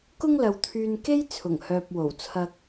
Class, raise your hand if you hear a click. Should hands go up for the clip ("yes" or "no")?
no